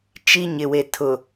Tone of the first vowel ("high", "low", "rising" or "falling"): high